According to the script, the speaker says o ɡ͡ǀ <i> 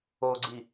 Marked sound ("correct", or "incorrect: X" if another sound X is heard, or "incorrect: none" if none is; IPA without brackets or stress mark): correct